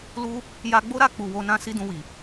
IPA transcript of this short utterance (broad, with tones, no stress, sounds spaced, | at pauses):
l u˦ | j a˧ ɡ͡b o˦ ɾ a˦˨ k͡p u˨ w o˧ n ã˦ s i˦ d ũ˧ w i˨